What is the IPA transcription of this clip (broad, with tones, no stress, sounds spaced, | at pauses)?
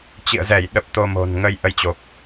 t͡ɕ ḭ˧˨ ə̯ z ɛ˧˩ j ɗ ə˨˩ p̚ t̪ o˧ m o̤˨˩ n ŋ ə˧ j ʔ ə˧ j t͡ɕ o˨˩ p̚